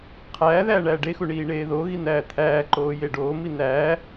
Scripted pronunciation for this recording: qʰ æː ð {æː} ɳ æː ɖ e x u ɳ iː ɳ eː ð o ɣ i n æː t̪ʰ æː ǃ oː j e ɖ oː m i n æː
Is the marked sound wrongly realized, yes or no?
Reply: no